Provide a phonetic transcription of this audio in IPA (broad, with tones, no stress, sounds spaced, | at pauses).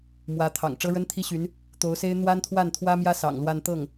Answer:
m w ä˧˥ t̪ʰ ɑ̰˨˩ ŋ ʈ͡ʂ ɤ˥ ɻ ə˥ n t̪ʰ i˥ ɕ y˧˥ n | t̪ o˧˥ ʊ̯ s e˥ ɪ̯ n̪ w a˥ n t̪ʰ w a˥˩ n t̪ʰ w ä˥ m j ä˥ s ɑ̰˨˩ ŋ l w a˥˧ n t̪ ɤ˥˩ ŋ